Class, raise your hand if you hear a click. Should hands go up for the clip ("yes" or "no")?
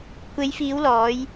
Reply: no